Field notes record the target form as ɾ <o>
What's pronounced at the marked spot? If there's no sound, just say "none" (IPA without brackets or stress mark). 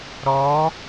ɔ